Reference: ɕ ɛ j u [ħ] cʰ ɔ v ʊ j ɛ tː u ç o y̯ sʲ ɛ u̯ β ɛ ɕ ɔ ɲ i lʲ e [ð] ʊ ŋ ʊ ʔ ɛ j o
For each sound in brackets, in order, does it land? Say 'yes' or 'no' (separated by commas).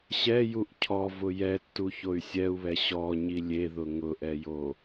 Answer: no, yes